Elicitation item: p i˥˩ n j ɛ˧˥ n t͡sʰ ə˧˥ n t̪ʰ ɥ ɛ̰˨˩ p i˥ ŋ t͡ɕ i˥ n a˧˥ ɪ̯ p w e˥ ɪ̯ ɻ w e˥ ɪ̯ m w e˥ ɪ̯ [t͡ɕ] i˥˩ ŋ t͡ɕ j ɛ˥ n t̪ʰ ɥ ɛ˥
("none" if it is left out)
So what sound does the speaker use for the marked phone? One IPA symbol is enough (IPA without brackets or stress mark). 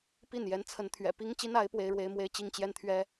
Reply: t͡ɕ